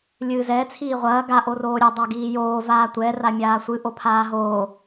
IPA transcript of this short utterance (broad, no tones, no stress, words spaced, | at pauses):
lʲɨːzɛ t͡sʰiːʁʷɐː ɡa ʔoroːɾʲɛ dˤaɡiːjoː vaːtʷɛ ramʲaːsʷɨ ʔopʰaːɦoː